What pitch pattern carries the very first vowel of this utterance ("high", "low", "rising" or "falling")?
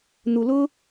low